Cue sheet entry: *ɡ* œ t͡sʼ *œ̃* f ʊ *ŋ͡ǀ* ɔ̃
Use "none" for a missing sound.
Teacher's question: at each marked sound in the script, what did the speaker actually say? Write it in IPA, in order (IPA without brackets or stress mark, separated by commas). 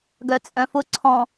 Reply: ɡ, œ̃, ǀʰ